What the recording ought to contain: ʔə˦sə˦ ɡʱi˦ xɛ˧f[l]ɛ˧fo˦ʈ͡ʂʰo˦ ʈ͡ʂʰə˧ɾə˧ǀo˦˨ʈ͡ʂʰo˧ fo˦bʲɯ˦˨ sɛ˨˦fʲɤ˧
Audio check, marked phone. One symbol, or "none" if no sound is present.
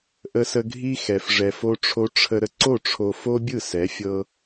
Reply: ʐ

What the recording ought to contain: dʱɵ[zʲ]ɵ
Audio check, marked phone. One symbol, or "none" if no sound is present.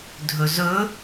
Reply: z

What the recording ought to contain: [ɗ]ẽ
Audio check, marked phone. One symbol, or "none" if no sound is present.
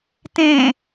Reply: t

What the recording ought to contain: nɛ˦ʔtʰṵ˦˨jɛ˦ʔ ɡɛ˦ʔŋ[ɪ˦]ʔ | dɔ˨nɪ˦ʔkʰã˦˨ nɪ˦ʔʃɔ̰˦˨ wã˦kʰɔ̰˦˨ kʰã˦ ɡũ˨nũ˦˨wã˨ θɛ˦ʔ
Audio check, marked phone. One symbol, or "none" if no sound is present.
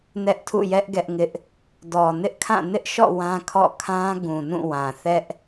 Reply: ɪ˦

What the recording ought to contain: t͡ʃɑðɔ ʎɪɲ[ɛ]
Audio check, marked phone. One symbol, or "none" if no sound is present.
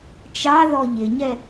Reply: ɛ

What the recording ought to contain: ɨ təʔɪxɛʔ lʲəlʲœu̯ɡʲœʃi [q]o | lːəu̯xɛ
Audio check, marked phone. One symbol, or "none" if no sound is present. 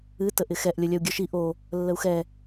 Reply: ʔ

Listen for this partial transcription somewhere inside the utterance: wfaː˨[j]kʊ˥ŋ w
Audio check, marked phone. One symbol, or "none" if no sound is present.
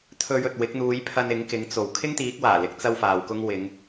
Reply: w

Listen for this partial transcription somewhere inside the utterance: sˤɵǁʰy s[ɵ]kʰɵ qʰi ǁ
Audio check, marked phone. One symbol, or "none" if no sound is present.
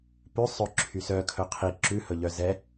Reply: œ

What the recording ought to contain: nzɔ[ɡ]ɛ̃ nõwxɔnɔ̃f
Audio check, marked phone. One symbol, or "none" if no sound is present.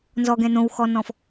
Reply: ɡ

